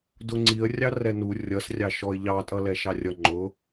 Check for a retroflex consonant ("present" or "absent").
absent